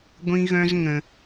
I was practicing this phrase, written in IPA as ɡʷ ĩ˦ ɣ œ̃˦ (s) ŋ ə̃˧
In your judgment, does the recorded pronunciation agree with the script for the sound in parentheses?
no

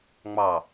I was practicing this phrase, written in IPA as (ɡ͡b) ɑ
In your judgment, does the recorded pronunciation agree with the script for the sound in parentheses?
no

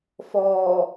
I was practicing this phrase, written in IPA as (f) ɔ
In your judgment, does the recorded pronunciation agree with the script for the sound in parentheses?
yes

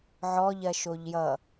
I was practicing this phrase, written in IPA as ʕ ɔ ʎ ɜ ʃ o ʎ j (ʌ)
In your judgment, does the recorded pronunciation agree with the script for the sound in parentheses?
yes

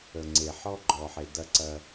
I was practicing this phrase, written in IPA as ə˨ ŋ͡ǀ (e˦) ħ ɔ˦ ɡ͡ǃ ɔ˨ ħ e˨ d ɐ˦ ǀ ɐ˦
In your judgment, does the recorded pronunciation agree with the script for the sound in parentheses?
no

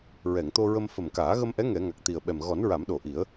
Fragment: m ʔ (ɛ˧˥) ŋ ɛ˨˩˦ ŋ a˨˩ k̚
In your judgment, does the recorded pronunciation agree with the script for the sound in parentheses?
yes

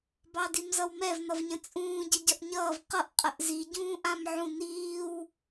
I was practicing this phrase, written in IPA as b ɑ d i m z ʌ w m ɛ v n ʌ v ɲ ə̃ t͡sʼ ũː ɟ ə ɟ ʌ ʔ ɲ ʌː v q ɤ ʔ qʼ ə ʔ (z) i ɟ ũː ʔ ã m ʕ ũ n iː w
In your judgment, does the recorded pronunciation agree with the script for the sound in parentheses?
yes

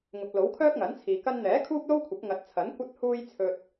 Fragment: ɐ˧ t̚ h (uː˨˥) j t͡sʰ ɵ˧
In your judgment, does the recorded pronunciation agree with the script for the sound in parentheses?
no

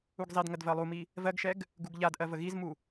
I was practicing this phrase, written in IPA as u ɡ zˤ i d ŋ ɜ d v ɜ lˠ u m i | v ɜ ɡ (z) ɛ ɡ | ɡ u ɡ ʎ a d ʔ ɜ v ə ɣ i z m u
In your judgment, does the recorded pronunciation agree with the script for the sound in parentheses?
no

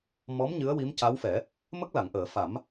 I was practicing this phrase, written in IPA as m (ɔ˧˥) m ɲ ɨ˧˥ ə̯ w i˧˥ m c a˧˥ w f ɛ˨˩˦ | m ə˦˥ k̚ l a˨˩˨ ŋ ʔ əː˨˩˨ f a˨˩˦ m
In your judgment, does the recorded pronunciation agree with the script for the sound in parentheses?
yes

